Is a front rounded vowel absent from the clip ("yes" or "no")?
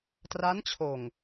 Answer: yes